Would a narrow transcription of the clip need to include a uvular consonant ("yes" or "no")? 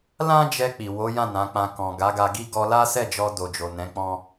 no